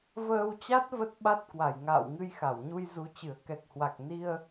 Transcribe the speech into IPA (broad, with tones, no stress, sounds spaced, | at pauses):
v əː˧ w t͡ɕ a˦˥ t̚ v ə˦˥ t̚ ɓ a˦˥ t̚ k w a˧˩ j ŋ a̰ː˧˨ w ŋ ɨ˧ j x a˧˩ w ɲ u˧ j z u˨˦ t͡ɕ ɨ˧˩ ə̯ k ɛ˨˩ k̚ h w a˨˩ k̚ n i˧ ə̯